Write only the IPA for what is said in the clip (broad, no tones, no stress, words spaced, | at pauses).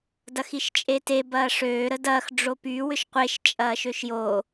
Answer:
dɐxiʃt͡ʃʼete bɐːʂøː ɾədɐːx ɖ͡ʐopy wʏʃqʷeʃ t͡ʃʼɐːʃøʃjo